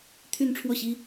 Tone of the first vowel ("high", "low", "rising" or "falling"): falling